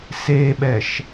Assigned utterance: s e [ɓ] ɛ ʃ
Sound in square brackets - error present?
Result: no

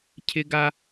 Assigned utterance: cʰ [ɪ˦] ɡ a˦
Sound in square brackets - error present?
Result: no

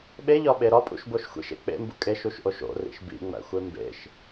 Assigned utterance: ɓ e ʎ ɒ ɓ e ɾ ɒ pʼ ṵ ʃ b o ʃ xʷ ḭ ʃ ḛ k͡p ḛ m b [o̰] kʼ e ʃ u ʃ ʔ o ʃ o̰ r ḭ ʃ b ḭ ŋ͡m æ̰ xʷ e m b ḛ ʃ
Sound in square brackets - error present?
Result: yes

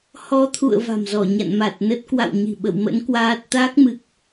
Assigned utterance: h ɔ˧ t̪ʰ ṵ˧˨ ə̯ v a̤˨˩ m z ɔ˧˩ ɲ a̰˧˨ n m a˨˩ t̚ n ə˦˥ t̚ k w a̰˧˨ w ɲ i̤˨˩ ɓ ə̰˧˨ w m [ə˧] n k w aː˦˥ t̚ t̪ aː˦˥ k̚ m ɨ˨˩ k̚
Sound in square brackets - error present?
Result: yes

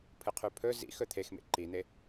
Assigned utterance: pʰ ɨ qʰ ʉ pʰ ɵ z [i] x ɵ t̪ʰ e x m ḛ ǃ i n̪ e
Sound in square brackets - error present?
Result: yes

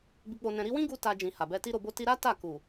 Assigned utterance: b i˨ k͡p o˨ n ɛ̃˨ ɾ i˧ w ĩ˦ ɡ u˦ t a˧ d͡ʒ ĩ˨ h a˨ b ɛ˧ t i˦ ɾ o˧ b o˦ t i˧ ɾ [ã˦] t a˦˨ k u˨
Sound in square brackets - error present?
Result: yes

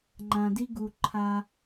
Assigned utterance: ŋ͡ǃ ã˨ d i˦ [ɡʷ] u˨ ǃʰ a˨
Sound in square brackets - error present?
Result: yes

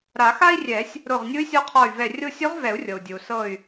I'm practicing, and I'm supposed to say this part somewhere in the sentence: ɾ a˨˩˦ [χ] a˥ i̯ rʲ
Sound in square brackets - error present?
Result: yes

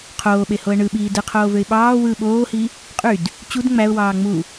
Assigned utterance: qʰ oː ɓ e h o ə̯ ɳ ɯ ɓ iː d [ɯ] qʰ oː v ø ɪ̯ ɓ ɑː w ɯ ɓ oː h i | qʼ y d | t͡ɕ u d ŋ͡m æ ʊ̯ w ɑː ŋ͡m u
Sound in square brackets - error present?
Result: no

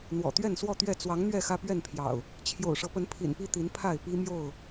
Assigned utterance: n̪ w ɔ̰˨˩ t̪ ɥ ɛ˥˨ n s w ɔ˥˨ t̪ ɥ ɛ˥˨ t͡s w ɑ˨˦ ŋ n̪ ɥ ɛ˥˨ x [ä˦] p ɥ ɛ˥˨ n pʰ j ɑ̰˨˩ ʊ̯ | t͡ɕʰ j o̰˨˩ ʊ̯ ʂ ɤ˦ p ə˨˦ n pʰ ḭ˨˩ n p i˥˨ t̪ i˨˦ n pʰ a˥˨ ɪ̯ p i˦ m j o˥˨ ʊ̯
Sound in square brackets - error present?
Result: no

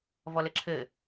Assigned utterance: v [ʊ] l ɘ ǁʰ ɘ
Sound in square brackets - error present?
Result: yes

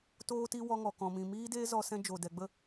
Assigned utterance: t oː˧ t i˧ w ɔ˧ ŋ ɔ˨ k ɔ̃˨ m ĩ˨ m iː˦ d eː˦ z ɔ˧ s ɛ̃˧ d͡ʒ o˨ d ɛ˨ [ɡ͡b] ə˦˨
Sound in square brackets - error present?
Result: no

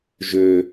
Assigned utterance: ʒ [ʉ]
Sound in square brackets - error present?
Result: yes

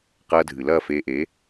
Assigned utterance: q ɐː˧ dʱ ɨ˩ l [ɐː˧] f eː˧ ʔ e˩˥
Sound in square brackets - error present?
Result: yes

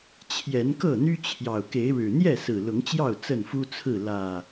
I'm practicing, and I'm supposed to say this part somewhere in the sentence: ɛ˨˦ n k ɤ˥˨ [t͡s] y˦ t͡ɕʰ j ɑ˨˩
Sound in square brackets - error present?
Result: yes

